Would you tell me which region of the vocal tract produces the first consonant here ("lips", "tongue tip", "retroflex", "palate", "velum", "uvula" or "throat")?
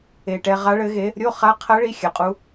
retroflex